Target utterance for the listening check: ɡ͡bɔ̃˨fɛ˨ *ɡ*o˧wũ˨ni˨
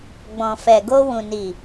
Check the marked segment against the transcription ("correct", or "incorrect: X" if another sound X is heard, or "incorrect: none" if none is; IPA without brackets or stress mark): correct